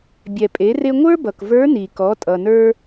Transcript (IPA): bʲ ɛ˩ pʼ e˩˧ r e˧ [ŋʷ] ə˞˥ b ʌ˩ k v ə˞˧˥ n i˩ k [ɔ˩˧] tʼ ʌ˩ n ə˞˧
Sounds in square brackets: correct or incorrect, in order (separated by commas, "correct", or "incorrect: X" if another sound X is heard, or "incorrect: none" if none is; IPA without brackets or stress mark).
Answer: correct, correct